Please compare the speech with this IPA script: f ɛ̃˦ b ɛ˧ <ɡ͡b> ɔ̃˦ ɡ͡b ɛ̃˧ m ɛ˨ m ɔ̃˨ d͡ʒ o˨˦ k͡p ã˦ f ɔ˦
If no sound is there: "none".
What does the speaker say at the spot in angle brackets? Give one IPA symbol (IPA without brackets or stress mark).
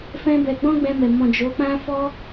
ɡ͡b